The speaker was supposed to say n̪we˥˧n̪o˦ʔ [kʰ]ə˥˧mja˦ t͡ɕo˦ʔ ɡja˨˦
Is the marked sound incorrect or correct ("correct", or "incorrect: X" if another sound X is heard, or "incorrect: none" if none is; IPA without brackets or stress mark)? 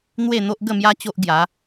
incorrect: ɡ